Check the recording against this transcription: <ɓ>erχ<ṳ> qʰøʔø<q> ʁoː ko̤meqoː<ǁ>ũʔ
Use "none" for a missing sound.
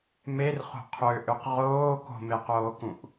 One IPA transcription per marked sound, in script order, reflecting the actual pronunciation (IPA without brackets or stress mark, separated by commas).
m, o̤, q, k